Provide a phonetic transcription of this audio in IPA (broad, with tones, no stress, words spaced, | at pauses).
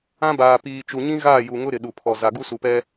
ã˦baː˨ piː˨t͡ʃu˨ɲĩ˦ɣaː˦˨ ju˨ŋʊ˦ ɾɪ˨ɗu˨pʰɔ˨ za˨ɡu˦ su˨pɛ˦